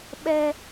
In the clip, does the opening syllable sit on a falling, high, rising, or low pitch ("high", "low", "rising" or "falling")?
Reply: high